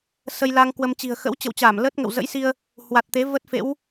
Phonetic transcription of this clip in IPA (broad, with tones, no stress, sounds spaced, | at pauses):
s ə˧ j l aː˧ ŋ k w ə˧ m t͡ɕ i̤˨˩ ə̯ x ə̰˧˥ w t͡ɕ ə̰˧˨ w t͡ɕ aː˧˩ m l ə˦˥ t̚ ŋ ə̰˧˨ w z ə̰˧˥ j s i˧ ə̯ | h w a˨˩ t̚ t̪ e˨˦ v ə˦˥ t̚ f ḛ˧˥ w